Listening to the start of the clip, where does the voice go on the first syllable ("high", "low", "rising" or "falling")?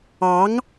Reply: rising